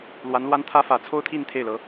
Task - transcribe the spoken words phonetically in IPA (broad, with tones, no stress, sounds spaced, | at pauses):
l w a˧˥ n l w a˥ n t̪ʰ ä˥ f ä˧˥ t͡sʰ o˥ ʊ̯ t̪ʰ i˥˧ n t̪ʰ e˥˩ ɪ̯ l ɤ˧˥